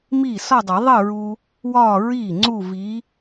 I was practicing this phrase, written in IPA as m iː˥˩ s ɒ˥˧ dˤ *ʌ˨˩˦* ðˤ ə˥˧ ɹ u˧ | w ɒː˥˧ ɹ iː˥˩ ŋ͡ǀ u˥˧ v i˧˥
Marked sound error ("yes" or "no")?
no